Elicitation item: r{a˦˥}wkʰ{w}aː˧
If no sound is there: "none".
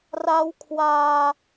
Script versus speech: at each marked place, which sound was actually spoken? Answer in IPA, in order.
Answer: a˦˥, w

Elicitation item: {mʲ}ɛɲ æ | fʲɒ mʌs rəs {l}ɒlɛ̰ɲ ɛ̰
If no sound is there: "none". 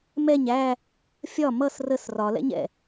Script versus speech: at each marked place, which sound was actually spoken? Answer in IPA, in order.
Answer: m, r

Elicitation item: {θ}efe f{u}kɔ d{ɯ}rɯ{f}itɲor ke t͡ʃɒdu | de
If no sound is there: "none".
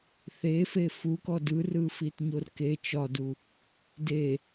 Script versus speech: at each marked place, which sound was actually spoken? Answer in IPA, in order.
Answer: θ, u, ɯ, f

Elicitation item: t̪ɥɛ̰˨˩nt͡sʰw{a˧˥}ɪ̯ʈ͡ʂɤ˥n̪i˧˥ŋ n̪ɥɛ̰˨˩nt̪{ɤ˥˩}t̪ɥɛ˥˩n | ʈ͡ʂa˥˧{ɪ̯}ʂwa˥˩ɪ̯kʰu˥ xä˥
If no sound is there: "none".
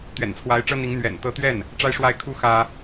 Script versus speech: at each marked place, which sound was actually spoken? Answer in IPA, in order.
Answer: a˧˥, ɤ˧˥, ɪ̯

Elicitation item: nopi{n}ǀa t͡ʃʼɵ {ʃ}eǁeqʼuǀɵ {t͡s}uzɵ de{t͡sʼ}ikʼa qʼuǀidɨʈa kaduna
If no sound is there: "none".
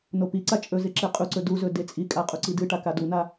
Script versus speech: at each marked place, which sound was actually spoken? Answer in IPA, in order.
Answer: none, z, d, t͡sʼ

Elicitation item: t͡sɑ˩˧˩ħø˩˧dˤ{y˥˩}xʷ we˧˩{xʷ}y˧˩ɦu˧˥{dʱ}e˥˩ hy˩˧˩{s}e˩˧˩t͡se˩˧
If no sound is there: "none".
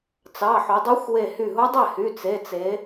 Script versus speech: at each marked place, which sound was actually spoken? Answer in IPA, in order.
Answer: y˧˥, h, dˤ, t͡s

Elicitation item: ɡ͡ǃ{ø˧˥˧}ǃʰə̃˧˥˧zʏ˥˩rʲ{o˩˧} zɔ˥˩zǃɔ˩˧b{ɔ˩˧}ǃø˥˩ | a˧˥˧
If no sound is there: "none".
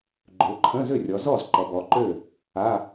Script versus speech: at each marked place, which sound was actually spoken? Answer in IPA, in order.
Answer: ø˩˧, ɔ˩˧, ɔ˩˧

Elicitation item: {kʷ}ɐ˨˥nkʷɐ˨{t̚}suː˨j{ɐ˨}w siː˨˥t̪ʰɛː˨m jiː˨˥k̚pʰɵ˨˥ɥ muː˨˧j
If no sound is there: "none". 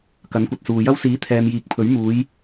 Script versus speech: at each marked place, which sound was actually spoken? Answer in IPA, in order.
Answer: k, t̚, ɐ˥

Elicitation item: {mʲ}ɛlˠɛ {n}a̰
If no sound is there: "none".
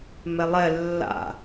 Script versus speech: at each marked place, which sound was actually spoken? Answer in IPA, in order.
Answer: m, lː

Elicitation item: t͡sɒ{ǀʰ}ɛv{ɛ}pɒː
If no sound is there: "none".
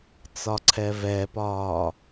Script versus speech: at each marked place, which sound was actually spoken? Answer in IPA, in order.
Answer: ǀʰ, ɛ

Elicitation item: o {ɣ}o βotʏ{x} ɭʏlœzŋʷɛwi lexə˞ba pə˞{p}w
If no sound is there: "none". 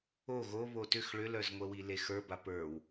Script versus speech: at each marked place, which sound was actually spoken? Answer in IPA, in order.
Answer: ɣ, x, none

